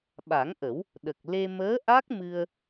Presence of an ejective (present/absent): absent